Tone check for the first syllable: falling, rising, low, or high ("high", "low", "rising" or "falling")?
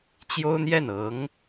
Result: high